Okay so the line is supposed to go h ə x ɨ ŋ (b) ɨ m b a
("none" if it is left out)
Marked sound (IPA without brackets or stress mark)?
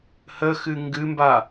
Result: ɡ